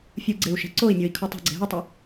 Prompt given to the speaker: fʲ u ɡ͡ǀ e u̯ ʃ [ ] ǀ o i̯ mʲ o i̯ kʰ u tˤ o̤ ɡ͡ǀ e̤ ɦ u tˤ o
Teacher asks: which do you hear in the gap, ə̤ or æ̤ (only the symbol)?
æ̤